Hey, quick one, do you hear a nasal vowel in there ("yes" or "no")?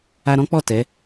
yes